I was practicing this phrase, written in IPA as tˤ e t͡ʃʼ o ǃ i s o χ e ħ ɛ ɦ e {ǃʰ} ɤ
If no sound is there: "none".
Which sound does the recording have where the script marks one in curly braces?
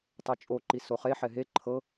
ǃʰ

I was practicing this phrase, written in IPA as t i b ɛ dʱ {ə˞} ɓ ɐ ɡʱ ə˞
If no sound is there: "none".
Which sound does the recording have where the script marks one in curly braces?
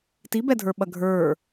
ə˞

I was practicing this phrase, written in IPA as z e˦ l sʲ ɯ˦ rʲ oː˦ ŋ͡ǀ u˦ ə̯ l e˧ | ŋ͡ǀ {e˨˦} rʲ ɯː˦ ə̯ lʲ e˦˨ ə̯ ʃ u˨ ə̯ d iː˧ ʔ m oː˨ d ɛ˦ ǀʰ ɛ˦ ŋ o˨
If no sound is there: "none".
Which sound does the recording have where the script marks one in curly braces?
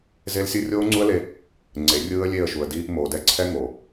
e˨˦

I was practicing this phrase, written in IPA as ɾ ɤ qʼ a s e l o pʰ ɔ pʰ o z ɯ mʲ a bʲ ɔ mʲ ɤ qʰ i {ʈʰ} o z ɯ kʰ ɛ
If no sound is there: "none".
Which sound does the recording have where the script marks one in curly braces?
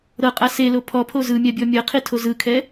tʰ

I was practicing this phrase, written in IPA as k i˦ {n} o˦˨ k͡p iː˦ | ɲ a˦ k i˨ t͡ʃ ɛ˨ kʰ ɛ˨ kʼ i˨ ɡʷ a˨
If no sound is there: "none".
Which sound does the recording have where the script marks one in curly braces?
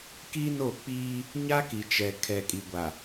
n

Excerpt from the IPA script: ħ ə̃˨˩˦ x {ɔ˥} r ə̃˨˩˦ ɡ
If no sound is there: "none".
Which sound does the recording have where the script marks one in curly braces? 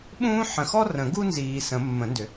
ɔ˥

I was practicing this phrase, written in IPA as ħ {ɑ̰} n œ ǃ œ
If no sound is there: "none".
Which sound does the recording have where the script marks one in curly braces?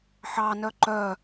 ɑ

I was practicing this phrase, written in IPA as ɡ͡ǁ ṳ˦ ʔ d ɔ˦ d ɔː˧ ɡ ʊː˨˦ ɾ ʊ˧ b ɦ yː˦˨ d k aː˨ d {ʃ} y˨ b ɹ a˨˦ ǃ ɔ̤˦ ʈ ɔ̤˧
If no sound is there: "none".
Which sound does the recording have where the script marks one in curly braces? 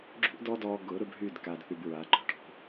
θ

